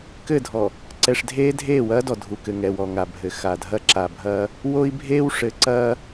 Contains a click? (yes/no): yes